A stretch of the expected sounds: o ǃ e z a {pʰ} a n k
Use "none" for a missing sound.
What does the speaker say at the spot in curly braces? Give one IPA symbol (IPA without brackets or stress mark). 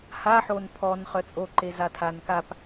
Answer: tʰ